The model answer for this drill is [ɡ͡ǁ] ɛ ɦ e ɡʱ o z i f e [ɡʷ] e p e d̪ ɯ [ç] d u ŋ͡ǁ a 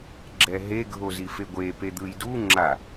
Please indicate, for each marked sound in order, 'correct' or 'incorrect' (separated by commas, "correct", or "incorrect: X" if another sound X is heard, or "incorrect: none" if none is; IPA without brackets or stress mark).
correct, correct, incorrect: j